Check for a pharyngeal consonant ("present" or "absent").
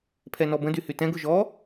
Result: absent